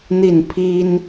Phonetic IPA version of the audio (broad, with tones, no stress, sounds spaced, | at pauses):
n̪ i˥˩ n pʰ i˥ n